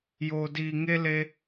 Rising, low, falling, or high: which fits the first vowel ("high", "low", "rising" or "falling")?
low